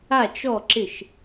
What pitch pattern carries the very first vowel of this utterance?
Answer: falling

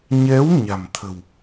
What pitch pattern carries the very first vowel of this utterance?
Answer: rising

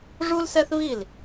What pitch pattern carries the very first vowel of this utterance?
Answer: high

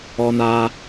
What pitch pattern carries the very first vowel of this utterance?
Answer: low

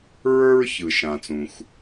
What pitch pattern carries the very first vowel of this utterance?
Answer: high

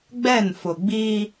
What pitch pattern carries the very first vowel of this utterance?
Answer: falling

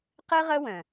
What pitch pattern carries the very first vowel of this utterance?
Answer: high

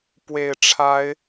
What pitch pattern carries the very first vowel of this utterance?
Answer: low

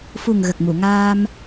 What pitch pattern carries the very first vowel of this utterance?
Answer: low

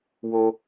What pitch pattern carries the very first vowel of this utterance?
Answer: high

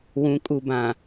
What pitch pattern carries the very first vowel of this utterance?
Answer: rising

